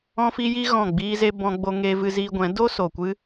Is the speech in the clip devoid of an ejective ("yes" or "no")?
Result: yes